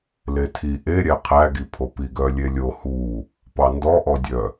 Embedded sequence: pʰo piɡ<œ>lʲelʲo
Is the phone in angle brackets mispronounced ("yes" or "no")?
no